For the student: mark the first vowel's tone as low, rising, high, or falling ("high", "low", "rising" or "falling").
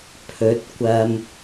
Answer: rising